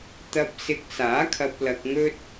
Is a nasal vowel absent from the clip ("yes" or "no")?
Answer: yes